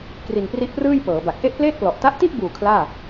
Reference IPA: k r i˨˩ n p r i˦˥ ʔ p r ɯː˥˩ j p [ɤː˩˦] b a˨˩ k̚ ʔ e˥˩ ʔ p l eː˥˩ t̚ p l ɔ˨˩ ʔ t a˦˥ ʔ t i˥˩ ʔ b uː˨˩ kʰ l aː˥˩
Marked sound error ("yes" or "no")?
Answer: no